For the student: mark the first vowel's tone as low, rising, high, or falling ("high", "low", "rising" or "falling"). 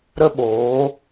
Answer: high